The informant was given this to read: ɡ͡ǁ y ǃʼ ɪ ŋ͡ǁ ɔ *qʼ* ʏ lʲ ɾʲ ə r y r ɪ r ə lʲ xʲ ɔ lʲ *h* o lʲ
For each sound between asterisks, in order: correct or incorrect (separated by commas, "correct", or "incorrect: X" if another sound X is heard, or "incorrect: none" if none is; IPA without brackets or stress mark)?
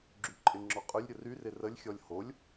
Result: correct, correct